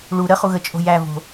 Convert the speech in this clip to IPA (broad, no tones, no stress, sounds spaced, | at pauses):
ɭ u ɾ ə χ u ɣ ə t͡ʃʼ o̤ j æ v o̤